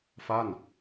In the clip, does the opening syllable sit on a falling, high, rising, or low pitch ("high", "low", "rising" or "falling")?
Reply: falling